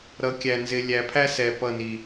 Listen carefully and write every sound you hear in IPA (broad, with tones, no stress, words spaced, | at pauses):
ɾʌ˨˦ kʲæ˨nzɪ˨ lʲæ˨pʰæ˦ sɛ˨ pʌ˦˨ni˨